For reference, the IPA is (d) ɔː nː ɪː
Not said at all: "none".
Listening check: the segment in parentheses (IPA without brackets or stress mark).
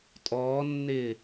tʼ